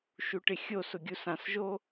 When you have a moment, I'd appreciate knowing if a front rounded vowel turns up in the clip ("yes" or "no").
no